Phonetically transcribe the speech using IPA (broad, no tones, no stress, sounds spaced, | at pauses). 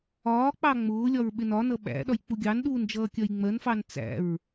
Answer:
ɒː k͡p ɑ ŋ͡m ʊː lʲ ɒ ɹ ɓ ɪ n ɒ n ʌ ɓ æ̰ ɗ ɒ j k͡p u ɡʲ ɑ n ɗ uː n d͡ʒ ʌː kʲ ɜ j ŋ͡m ɜ n f ɑ n t͡s æ̰ ɹ